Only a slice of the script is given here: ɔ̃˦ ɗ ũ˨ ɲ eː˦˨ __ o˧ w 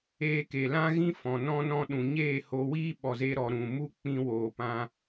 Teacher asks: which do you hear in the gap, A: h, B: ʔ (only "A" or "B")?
A